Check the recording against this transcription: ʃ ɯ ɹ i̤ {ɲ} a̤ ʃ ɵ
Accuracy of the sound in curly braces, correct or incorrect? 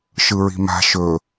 incorrect